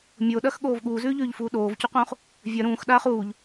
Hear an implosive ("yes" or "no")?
yes